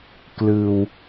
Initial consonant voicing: voiceless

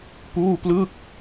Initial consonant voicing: voiceless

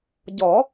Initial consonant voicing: voiced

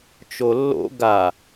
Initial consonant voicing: voiceless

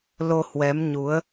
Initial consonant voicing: voiced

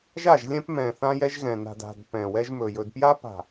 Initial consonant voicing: voiced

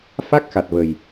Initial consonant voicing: voiceless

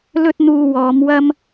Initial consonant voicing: voiced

